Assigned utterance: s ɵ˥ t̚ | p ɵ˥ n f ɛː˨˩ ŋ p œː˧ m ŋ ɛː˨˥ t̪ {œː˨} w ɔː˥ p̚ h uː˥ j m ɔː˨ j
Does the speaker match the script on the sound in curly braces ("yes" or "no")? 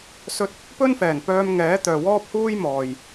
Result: yes